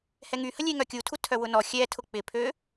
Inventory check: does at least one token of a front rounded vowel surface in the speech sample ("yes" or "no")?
yes